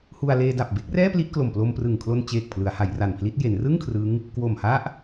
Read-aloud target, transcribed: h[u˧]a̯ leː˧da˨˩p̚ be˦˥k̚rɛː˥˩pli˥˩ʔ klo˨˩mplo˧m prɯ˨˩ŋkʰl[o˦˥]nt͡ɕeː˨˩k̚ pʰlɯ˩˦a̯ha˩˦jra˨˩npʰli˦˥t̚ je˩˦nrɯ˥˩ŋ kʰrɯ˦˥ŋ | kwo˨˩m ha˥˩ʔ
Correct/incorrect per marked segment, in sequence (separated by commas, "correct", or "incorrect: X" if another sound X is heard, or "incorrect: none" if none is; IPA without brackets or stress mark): correct, incorrect: o˧